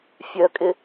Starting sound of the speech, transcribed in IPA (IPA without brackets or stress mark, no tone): fʲ